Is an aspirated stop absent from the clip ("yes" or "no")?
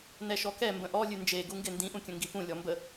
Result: yes